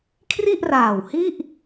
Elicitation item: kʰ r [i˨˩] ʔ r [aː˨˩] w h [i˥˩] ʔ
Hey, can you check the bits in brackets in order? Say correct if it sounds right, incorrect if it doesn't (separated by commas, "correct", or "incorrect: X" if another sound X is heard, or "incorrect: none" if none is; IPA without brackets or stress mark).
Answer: incorrect: i˥˩, correct, correct